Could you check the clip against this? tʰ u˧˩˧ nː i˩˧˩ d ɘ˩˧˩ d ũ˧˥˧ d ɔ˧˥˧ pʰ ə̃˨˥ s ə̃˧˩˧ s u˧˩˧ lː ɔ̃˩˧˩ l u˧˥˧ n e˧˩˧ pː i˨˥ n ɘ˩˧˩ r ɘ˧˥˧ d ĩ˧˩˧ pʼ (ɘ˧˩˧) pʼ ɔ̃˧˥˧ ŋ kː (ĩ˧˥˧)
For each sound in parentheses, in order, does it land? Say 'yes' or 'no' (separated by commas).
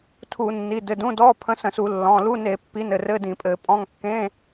yes, no